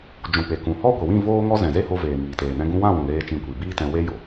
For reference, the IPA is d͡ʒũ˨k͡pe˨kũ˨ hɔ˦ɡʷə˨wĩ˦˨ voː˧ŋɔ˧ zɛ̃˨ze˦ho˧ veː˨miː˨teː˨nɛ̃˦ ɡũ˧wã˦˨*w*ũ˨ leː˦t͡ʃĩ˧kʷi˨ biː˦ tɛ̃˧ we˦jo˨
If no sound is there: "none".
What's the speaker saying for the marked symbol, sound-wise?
w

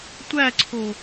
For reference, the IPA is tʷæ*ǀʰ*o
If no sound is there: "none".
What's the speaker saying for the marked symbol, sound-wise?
ǀʰ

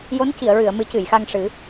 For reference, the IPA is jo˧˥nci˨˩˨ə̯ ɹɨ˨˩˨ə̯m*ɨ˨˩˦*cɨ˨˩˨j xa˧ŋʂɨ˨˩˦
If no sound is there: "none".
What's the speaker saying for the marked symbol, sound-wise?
ɨ˨˩˦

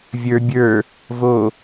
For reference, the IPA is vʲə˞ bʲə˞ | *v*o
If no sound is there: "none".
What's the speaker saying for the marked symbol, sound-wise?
v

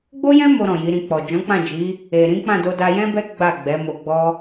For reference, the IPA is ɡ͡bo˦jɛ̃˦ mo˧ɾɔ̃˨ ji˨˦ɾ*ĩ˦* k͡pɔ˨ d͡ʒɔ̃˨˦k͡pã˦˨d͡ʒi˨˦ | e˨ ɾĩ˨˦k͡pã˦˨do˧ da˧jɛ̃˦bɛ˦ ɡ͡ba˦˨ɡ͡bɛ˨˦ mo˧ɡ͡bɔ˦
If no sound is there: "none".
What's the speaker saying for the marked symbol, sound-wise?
ĩ˧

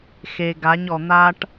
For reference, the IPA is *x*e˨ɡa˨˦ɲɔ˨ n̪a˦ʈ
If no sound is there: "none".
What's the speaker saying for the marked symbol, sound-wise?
x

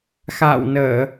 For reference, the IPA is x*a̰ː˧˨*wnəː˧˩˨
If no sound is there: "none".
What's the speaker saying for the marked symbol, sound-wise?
a̰ː˧˨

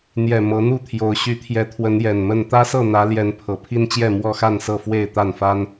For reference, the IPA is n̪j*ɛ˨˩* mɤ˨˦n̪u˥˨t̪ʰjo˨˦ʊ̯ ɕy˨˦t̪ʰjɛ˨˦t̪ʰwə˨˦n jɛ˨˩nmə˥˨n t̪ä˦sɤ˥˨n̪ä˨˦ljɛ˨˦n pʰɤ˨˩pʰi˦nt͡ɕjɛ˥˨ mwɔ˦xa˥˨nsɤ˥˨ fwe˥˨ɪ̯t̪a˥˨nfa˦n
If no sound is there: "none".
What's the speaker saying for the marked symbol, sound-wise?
ɛ˨˩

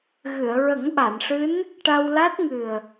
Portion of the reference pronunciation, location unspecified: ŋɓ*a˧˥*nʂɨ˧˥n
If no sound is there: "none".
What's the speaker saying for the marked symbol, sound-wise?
a˨˩˨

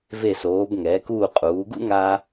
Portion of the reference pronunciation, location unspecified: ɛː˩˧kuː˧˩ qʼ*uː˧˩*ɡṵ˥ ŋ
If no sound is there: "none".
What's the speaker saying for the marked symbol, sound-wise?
uː˩˧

